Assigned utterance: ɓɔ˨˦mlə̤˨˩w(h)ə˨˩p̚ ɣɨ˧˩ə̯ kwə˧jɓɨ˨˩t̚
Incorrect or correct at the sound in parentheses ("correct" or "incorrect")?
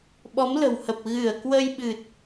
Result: correct